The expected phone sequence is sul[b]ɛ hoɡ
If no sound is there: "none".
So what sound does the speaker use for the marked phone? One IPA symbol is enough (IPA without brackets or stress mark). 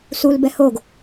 b